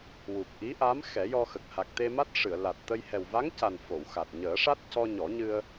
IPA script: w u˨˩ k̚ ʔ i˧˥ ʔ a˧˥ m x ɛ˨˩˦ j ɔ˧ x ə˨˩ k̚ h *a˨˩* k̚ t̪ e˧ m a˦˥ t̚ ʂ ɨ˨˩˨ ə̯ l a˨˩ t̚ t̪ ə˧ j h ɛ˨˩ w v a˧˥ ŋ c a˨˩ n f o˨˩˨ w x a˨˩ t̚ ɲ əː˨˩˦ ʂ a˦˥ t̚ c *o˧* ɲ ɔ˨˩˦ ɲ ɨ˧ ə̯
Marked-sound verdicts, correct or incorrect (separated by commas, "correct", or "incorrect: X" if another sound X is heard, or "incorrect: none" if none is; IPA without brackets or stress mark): correct, incorrect: ɔ˧